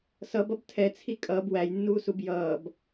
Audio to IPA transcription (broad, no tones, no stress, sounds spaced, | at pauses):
s ʌ b ʌ b tʰ ɛ t͡sʰ i kʼ ʌː b w æ j nː uː s u b j ʌː b